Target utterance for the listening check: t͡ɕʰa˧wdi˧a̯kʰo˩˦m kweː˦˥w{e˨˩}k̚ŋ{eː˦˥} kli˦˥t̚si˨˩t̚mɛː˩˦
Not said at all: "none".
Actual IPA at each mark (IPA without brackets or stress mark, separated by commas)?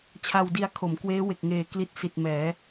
e˨˩, eː˨˩